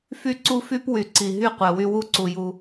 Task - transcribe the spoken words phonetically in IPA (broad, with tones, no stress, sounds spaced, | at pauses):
f y˦ ǀ u˦ f y˦ p w y˨ ǀ i˨ ɦ y˦ qʷ ɛ˨ w y˦ w u˦ ǀ u˨ j u˨